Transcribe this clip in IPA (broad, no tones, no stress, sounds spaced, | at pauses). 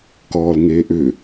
k ɔː l ŋ eː ʔ ʏ